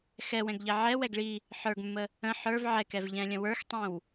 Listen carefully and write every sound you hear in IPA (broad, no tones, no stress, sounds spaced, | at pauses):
x ɛ w ɛ̃ ɡ ʎ ɛ ʕ ɛ w ɛ ɡ ɭ i | ħ ə˞ ɡ mː ə | ə̃ ħ ə˞ v ʕ ɛ k ɛ v ʎ ɛ̃ lʲ ə̃ w ə˞ x tˤ ĩ w